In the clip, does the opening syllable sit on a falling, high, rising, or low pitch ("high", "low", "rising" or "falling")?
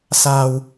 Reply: low